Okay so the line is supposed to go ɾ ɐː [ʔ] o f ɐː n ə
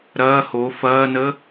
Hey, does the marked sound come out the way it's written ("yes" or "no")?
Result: no